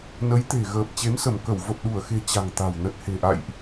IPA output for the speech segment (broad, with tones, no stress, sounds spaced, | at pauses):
n ə˨˦ j t̪ e̤˨˩ ɣ əː˨˩ p̚ t͡ɕ e˨˦ m s ə˧˩ m k ə˧˩ w v ə˨˩ p̚ ɗ u˧˩ ə̯ x e̤˨˩ t͡ɕ a̤˨˩ ŋ t̪ a̤˨˩ w n ə˨˩ t̚ h e̤˨˩ ʔ a̰˧˨ j ʔ